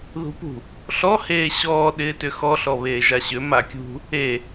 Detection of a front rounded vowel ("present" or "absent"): present